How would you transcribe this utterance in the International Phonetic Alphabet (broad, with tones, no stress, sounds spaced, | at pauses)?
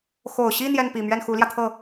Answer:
x o˨˩ ʊ̯ ɕ i˥˧ n̪ j ɛ˥˩ n p i˨˩ m ɥ ɛ˥˩ n x u˧˥ l j ä˧ t̪ʰ ɤ˥˩